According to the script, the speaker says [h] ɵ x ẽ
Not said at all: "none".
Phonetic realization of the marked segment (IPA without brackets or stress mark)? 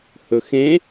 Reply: h